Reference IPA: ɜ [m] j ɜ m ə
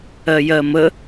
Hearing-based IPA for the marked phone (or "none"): none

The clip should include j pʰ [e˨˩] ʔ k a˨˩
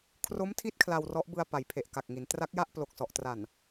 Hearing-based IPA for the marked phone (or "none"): e˨˩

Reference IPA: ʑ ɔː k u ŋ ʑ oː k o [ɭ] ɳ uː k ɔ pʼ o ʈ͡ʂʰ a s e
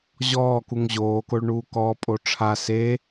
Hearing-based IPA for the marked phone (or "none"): ɭ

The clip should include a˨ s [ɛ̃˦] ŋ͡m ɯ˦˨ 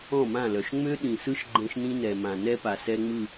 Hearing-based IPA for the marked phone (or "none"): ɛ˦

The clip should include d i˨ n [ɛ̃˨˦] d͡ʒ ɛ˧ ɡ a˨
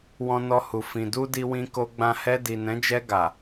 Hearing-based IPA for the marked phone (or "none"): ɛ̃˨˦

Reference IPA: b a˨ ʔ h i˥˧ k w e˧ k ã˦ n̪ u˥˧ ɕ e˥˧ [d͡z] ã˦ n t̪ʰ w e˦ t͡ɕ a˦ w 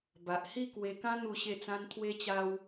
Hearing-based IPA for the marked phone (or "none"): t͡s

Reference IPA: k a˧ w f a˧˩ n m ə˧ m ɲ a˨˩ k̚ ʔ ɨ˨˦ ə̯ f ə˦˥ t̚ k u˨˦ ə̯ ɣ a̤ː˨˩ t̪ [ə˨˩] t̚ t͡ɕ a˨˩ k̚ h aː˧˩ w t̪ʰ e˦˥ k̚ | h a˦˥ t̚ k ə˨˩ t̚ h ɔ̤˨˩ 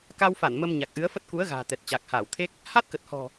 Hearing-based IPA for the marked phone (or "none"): ɛ˨˩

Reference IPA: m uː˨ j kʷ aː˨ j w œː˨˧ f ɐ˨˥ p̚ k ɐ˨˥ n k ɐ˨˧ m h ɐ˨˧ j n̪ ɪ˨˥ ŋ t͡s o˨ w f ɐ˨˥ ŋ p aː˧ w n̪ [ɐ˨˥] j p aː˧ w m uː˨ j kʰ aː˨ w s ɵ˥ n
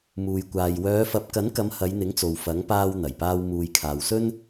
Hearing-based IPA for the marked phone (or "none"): ɐ˨˩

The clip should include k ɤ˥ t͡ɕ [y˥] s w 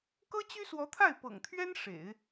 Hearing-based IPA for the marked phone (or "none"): y˥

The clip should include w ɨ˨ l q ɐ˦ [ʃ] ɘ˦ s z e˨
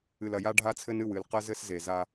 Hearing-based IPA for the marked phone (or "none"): z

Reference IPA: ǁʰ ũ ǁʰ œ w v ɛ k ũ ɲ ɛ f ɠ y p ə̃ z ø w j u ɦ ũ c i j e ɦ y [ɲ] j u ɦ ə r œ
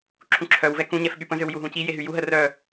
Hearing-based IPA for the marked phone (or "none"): none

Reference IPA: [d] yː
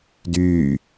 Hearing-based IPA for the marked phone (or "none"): d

